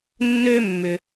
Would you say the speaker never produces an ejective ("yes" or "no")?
yes